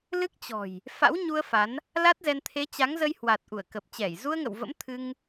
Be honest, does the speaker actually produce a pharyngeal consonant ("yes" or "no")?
no